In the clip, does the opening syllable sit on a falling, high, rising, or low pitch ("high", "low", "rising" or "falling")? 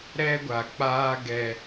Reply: high